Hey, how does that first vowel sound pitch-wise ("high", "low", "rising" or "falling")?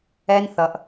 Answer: high